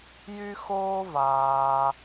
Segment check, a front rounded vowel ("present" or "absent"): present